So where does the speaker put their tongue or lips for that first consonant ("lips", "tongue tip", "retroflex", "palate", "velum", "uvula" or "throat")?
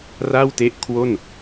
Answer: tongue tip